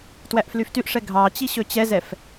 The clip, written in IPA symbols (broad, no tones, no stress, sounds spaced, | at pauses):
t w æ ʔ f l y f t y ʔ ʂ ɛ ɡʱ ɑ t͡ɕ i ɕ ɵ t͡ɕ ɛ z ɛ f